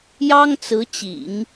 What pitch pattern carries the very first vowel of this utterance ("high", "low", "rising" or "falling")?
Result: high